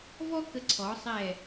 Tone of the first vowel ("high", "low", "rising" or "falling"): high